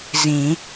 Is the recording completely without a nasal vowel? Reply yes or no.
no